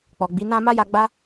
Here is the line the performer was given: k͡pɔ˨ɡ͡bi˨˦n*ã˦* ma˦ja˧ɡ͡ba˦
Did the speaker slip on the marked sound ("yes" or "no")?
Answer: no